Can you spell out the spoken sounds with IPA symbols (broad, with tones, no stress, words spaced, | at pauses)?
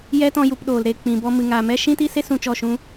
jɛ˦tɔ̃˧ju˨p ɗoː˨lɾe˨ k͡pĩ˨bɔ˧ mɨ˨ŋa˨mɛ˦ ʃĩ˦ti˦se˦ sũ˧t͡ʃɔ˦˨ ʃũ˦